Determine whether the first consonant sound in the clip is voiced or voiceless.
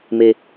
voiced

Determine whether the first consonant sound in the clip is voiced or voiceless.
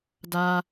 voiced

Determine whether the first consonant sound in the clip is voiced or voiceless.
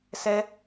voiceless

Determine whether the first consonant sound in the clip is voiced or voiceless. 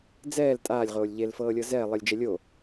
voiced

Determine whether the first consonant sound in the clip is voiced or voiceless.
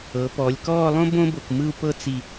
voiceless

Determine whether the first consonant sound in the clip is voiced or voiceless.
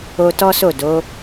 voiceless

